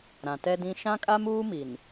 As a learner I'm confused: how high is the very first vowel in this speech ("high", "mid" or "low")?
low